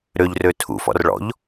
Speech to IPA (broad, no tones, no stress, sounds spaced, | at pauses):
ɾ ø ʎ r ø tʰ ṵ f ɔ̰ r ɭ ɔ̰ ʎ